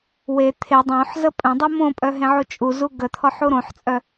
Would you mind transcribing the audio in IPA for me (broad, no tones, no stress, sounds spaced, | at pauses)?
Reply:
w e t̪ʰ e dˤ õ ħ z ə pʼ œ̃ dˤ u m õ pʼ œ ɦ ẽ ʕ u t͡ʃʼ u z u ɡ ə t̪ʰ ɔ ħ u ɾ õ ħ t͡sʼ œ